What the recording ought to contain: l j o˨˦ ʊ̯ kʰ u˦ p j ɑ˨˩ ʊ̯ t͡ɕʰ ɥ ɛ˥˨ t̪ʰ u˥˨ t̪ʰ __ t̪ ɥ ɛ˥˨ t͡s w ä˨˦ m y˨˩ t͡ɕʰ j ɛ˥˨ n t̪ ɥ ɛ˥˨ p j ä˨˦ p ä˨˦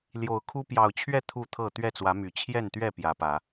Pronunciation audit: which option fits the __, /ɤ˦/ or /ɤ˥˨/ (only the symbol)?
ɤ˥˨